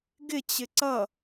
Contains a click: yes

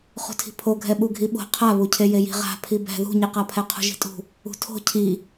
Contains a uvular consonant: yes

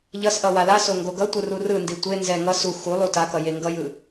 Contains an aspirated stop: no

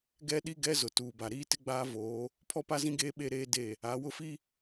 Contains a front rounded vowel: no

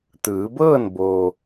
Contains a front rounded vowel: no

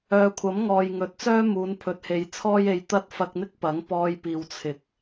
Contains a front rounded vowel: yes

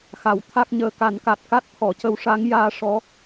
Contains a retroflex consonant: yes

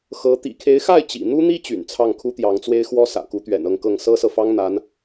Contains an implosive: no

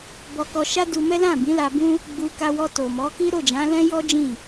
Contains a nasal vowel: yes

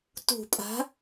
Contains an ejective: yes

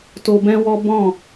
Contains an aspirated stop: no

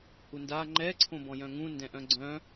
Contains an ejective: no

